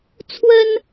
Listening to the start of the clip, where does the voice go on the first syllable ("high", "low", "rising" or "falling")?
high